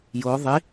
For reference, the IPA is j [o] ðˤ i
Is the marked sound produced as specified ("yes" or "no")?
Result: yes